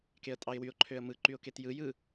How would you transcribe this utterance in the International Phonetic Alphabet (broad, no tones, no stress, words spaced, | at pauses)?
keə̯tʼɑɪ̯wyʊ̯ ǃʰøə̯mɯ ǃyʊ̯ketjɯ jɯ